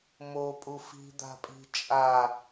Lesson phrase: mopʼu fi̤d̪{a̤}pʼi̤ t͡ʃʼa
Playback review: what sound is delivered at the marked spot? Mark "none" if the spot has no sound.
a̤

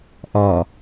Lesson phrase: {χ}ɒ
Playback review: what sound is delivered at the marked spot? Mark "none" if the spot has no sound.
ʔ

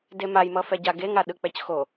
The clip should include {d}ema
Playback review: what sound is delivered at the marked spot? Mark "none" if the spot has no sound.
d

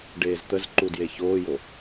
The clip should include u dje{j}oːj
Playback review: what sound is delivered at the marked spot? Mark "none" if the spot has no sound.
ç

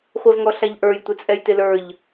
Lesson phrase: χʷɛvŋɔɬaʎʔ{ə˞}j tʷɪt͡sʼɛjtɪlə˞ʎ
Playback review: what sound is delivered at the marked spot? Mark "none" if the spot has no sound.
ə˞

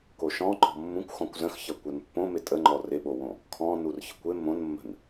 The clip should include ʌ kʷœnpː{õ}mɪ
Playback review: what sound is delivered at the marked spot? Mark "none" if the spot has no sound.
õ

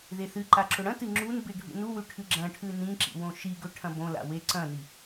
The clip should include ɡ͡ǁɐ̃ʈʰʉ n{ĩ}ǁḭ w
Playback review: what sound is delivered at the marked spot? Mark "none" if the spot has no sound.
ĩ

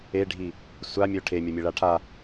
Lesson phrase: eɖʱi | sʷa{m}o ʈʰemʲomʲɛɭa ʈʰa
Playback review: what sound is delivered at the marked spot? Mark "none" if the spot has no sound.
mʲ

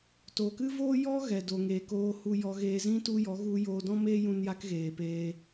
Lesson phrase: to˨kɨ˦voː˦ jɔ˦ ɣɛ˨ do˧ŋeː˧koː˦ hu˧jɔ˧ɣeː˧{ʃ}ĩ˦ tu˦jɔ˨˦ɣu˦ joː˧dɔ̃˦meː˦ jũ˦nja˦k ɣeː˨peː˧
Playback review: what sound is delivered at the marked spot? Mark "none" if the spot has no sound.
z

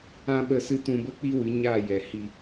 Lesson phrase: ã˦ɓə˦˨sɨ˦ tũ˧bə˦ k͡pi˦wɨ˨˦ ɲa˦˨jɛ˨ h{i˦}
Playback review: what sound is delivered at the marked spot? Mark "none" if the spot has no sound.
i˨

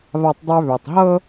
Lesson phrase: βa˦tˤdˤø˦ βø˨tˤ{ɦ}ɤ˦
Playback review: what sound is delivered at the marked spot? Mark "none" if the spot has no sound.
ɦ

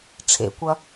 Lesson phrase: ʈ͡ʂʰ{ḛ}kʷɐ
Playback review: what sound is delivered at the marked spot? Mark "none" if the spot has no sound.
ḛ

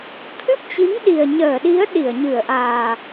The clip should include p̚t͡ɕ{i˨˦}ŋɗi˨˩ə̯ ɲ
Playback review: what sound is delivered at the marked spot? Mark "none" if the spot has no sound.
i˨˦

